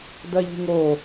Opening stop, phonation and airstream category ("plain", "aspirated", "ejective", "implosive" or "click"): plain